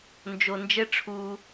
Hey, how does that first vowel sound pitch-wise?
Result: low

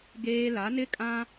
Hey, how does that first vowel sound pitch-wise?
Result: high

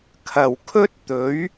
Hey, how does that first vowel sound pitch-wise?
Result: low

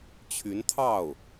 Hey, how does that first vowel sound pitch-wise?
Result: rising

